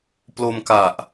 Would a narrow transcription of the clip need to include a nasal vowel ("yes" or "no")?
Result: no